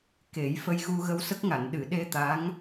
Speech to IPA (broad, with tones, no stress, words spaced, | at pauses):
ke˨˩˦j fə˧jɣu˧ ɣə˧wsə˦˥k̚ŋa˨˩˨n ɗɨ˨˩˨ ɗe˧ t̪a˧˥ŋ